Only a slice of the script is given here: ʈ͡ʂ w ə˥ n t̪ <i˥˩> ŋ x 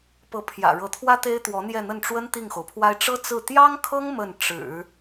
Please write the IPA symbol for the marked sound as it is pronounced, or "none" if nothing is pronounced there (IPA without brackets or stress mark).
i˥˩